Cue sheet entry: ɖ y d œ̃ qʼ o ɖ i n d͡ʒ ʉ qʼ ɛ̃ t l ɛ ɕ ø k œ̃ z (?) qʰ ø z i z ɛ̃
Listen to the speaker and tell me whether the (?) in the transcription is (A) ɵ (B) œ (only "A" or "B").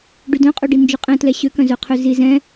B